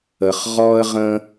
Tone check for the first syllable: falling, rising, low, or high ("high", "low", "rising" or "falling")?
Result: low